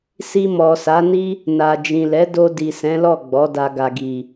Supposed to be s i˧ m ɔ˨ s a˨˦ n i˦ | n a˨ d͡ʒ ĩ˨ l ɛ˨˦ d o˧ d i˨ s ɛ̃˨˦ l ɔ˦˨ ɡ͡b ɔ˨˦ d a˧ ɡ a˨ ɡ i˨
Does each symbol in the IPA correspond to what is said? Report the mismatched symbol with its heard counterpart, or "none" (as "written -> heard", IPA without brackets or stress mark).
none